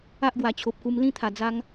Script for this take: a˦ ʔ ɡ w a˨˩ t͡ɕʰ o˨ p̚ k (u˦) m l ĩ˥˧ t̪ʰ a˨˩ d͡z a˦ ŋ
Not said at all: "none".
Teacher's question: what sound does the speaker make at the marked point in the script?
u˧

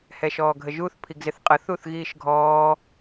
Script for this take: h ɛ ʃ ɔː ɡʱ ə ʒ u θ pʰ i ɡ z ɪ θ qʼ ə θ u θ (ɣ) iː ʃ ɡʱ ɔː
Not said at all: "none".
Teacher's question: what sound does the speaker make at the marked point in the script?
ɣ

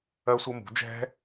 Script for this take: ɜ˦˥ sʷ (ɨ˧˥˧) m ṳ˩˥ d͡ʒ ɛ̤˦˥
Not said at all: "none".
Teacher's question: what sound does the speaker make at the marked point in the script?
ə˧˥˧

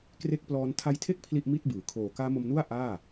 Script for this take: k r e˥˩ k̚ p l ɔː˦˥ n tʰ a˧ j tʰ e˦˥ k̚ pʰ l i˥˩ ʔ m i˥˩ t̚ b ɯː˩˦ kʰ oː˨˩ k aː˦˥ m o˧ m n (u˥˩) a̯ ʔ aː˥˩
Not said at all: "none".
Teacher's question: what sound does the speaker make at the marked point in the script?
u˥˩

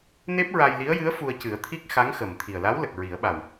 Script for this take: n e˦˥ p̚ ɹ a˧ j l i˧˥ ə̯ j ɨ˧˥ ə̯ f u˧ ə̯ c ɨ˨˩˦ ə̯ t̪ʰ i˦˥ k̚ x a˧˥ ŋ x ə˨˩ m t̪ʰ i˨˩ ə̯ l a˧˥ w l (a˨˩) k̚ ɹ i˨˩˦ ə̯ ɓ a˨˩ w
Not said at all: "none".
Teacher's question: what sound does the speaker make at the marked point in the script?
ə˨˩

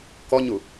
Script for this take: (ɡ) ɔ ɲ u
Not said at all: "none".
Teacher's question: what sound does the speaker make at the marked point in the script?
k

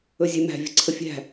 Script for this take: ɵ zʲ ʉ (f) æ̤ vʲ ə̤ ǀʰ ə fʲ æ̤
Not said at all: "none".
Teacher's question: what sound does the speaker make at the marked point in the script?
m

